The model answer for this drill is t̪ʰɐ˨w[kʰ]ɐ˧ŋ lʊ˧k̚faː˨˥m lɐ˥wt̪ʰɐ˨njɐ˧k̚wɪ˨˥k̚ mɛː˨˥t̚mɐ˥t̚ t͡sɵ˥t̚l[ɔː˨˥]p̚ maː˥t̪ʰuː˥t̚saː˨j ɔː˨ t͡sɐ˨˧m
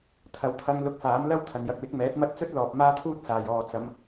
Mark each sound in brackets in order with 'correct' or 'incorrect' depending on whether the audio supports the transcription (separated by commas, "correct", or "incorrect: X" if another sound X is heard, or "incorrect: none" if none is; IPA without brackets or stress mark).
incorrect: t̪ʰ, incorrect: ɔː˨